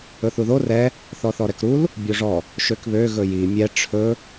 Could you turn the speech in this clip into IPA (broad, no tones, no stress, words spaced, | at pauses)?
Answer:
ɵθuðo rɛ | θɔθɔɾɛkɾul | bʲoʐɔ | ʃøkβø ɣɵji mʲɛ ʈ͡ʂʰɵ